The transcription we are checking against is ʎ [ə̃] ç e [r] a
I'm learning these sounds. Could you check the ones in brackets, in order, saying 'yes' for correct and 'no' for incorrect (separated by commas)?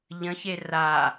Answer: yes, yes